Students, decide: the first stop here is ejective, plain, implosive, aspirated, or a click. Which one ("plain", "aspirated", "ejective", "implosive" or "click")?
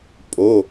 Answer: ejective